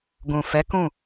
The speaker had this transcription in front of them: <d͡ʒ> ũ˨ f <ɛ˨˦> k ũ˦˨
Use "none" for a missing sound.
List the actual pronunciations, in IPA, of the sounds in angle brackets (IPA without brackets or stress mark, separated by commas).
ɡ, ɛ˨˦